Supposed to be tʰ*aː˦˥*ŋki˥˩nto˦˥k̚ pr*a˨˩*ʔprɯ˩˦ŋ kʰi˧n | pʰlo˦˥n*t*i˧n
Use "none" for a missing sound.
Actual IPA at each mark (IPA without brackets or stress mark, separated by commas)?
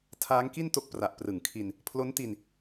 aː˦˥, a˨˩, t